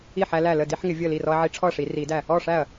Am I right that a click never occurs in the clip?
yes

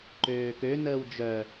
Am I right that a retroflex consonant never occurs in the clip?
yes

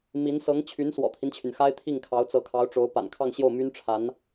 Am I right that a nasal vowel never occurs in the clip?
yes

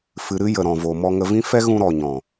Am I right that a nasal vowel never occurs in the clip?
no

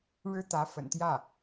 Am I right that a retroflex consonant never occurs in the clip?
no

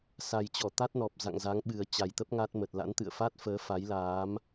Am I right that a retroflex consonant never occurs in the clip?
yes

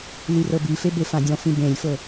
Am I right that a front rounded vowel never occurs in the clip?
yes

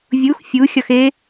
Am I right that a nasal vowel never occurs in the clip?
yes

